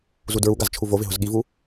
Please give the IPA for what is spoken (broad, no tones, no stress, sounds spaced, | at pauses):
z u d ɹ u ɡ a z t͡ʃʰ u v o v ɪ ɦ ʊ z ɠ i v u